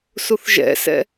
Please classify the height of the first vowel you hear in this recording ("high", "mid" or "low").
high